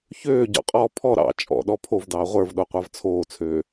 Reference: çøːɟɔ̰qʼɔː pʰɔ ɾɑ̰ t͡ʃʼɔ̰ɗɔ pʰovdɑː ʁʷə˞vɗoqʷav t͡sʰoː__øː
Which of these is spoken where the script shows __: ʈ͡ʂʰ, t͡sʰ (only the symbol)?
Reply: t͡sʰ